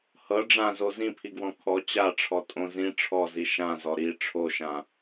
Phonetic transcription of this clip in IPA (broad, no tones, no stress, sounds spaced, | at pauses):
h ɤ ɖ͡ʐ ã z o z ĩ pʰ i ɡ w ɔ̃ kʰ ɔ t͡ɕ a ʈ͡ʂʰ ɔ tʼ õ z ĩ ʈ͡ʂʰ ɔ z i ʃ ã z ɔ ɾ i ʈ͡ʂʰ o ʃ ã